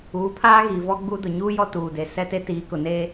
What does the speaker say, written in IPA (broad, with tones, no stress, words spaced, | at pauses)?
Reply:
uː˨˦pʰaː˦ ɣiː˨vɔ˦ ɡ͡bu˦dʊ˨ ɲuː˦jɔ˦ tuː˨de˨ sɛ˦te˦ tiː˨˦kʊ˨ne˦